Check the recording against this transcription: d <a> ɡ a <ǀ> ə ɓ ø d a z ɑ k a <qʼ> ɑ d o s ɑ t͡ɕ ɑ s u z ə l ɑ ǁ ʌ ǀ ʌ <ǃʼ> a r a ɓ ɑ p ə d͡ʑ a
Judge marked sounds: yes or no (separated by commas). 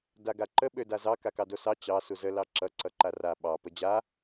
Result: yes, no, no, no